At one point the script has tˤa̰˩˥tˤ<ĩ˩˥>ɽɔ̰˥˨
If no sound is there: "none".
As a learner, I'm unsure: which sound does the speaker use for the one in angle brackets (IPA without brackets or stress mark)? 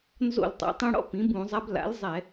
ĩ˧